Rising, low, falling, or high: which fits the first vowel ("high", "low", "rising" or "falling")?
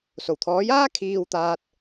low